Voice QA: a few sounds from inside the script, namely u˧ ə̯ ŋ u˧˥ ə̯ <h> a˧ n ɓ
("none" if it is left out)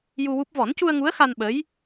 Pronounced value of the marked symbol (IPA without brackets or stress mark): x